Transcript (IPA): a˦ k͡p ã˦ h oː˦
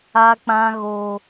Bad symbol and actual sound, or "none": h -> ɣ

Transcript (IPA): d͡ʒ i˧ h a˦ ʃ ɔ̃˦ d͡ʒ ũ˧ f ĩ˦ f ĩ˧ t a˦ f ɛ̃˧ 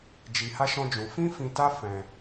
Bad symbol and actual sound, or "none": none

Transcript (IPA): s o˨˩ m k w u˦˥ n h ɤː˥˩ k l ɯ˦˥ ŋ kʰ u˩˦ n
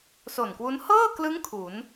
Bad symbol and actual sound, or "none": m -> n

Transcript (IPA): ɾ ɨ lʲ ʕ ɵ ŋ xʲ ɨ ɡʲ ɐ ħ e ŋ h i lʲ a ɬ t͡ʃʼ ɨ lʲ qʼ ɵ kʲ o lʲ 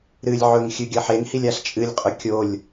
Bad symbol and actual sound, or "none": none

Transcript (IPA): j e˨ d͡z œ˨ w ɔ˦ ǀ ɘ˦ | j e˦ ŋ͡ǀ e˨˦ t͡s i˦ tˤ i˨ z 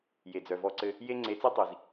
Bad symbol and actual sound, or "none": w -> v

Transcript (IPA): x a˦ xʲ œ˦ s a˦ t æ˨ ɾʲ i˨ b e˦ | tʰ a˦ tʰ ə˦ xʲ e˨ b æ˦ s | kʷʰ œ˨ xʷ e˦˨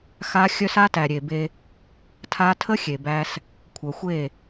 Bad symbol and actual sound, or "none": i˨ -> e˨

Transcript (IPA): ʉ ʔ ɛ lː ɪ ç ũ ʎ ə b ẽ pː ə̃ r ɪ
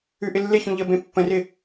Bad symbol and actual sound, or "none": ɛ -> ɪ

